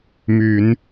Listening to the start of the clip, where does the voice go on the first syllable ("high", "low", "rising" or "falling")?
low